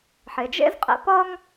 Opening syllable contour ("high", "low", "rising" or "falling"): low